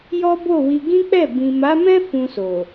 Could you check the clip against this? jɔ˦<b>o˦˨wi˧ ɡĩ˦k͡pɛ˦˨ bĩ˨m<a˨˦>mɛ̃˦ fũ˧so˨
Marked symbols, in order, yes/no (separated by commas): yes, yes